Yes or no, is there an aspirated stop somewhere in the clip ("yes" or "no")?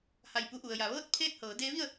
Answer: yes